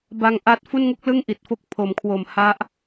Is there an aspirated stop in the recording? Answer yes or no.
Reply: yes